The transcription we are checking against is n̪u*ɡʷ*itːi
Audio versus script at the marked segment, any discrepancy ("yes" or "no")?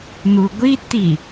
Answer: no